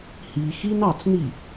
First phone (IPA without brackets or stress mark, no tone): h